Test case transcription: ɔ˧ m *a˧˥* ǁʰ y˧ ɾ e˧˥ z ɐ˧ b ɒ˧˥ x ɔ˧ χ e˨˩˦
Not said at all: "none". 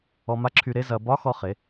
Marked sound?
a˧˥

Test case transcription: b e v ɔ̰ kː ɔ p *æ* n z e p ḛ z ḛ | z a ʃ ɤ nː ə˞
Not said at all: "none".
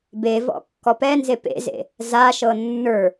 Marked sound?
ɛ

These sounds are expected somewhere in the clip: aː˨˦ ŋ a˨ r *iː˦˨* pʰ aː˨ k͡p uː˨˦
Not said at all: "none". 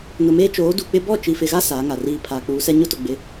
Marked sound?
iː˦˨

